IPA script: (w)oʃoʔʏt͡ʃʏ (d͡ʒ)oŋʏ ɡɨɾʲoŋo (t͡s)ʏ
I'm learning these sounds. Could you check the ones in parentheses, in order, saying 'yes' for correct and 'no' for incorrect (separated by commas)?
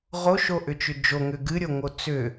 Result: no, yes, yes